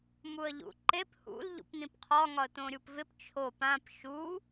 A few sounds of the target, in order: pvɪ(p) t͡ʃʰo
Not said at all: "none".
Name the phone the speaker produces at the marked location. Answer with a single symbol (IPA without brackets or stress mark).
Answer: p